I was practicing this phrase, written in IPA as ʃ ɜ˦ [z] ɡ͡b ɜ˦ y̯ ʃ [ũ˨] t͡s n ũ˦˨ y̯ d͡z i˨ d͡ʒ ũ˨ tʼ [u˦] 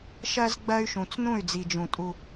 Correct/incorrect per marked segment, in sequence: correct, correct, correct

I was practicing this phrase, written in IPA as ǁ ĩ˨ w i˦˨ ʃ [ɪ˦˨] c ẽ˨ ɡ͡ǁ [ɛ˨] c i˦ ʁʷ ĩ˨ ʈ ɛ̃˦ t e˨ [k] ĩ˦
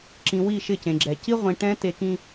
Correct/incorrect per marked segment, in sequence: correct, correct, correct

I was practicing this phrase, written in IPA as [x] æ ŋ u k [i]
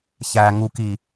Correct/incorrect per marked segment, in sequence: incorrect: ç, correct

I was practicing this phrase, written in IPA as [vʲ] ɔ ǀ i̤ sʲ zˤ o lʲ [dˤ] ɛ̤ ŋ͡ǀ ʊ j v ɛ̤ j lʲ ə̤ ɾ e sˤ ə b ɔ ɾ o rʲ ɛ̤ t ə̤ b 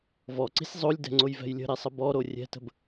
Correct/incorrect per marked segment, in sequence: incorrect: v, incorrect: d

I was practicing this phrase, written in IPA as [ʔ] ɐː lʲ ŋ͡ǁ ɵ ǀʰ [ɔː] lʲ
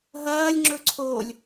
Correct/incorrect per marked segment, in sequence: incorrect: ɦ, incorrect: oː

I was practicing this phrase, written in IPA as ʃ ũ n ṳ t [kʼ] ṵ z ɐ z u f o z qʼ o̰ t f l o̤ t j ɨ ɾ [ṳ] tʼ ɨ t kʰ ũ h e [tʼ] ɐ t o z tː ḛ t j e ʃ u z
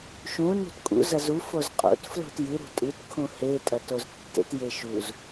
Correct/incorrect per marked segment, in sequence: correct, correct, correct

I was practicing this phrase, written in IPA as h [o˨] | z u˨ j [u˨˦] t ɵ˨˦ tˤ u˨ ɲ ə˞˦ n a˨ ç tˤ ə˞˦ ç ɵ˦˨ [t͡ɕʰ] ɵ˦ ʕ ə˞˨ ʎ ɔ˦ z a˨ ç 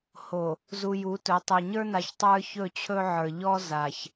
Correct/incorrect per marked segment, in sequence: correct, correct, correct

